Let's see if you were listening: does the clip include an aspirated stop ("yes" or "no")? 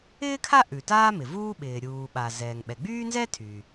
yes